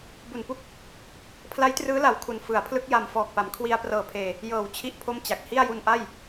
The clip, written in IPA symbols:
b u˨˩ n p u˥˩ k̚ | pʰ l a˦˥ j t r ɯː˦˥ l a˨˩ w kʰ u˨˩ n f ɯ˩˦ a̯ pʰ l ɯ˦˥ k̚ j a˧ m f ɔː˨˩ k̚ p a˩˦ m kʰ w i˧ a̯ p r ɤː˨˩ pʰ eː˨˩ | j ɤː˨˩ w t͡ɕʰ i˥˩ ʔ pʰ o˥˩ m t͡ɕ a˨˩ k̚ h i˥˩ a̯ j u˧ n ʔ a˥˩ j

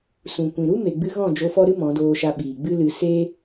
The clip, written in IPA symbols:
s ũ˨ kʷ ĩ˨ ɾ u˦ m e˨ ɡ͡b ɨ˧ ɣ ɔ̃˦˨ d͡ʒ o˧ f ɔ˦ ɾ ɨ˦ m ɔ̃˨˦ d oː˧ ʃ a˧ ɓ iː˨ ɡ͡b ɨ˦ l ɨ˧ s e˦

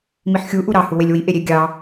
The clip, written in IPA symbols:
m i ħ xʲ u ʔ u ɾ ɑ h u w e lʲ w i ʔ e ɾʲ e ɡʲ ɑ

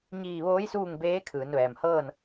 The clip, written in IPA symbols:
ɲ iː˧˩ ʋ oː˧˥ j s uː˥˨ ŋ b eː˧˥ kʰ ɯː˩˧ n ʋ ɛː˩ m h ɤː˥˨ n

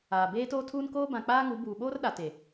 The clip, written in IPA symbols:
aː˨ b eː˦ t oː˦ tʰ uː˦ n k oː˦ b ã˨ k͡p aː˦ ŋ u˨˦ b uː˨ ɓ oː˦ r ɗ a˨ t e˨

